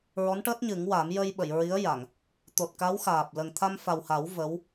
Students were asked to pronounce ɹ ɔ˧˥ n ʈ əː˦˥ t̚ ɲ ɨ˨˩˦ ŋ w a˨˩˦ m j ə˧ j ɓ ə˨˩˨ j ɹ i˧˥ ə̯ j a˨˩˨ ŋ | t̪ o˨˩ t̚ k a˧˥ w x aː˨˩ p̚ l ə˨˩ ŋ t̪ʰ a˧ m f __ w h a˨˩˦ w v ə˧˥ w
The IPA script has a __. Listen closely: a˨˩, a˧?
a˨˩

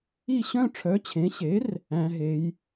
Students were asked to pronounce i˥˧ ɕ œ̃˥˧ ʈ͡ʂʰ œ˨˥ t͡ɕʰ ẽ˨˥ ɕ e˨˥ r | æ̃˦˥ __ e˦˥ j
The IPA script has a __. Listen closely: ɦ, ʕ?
ɦ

